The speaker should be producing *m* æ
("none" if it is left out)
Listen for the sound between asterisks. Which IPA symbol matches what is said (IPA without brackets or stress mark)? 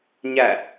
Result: ɲ